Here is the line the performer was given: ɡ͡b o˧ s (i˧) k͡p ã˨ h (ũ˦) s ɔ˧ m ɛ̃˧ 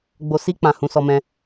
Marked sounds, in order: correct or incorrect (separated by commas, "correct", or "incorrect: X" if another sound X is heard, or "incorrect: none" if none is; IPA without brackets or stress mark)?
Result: correct, incorrect: ũ˨˦